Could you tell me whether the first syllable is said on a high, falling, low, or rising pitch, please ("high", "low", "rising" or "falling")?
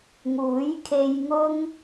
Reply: rising